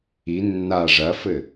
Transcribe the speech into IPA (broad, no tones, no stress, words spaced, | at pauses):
i nːa ʐɐfɘ